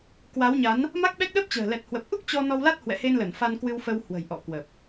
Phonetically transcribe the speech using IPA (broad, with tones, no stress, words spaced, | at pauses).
kwa˨˦wɲa˨˦n | ma˦˥k̚ɓɛ˦˥k̚ ɗəː˦˥p̚t͡ɕə̤ː˨˩ lɛ˨˩t̚hwə˨˩p̚ʔu˦˥k̚ t͡ɕɔ˧ nɔ˧wla˦˥t̚ hwɛ̰˧˨he˧nlə˧˩n fa˧nkwɨ˧wfə˧w hwə̤˨˩jʔɔ̰˧˨kwə˨˩p̚